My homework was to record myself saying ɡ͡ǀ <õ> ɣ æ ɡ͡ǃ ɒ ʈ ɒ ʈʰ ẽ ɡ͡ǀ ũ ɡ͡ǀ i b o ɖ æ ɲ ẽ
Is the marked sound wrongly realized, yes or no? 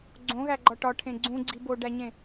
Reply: no